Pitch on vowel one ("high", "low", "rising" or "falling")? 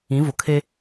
rising